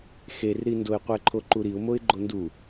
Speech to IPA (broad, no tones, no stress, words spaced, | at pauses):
xerɾindoɪ̯ qʷɛǃʰoǃuɾiʊ̯ moɪ̯ɡ͡ǃondu